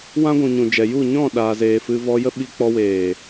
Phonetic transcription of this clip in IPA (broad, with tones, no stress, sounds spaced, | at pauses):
w ã˦ ɡʷ ũ˨ ɲ ũ˨ d͡ʒ ɛ˨ j u˦˨ ɲ ɔ̃˦˨ ɗ aː˨ z eː˨ f ɨ˧ v ɔ˧ j ə˦ ɓ i˧ k͡p ɔ˧ w eː˨